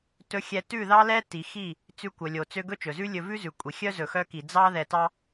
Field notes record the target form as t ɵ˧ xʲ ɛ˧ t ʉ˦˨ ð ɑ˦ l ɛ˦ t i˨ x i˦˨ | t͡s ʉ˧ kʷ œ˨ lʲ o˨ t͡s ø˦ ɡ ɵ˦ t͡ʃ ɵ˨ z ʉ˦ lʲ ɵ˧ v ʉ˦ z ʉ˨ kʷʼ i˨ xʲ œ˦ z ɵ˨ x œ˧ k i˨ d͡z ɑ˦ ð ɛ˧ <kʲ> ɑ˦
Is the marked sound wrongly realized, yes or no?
yes